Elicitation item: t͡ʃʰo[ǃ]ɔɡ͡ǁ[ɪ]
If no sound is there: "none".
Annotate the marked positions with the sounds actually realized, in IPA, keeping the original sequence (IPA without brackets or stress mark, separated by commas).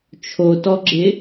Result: t, ɪ